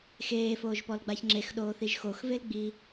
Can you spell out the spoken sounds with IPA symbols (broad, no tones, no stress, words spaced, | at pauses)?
xeːfoːʒpɔlɡ͡baç ŋ͡ǁexɗoːθiʒ xoxvelɡ͡biː